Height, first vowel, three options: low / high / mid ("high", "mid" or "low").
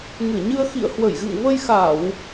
high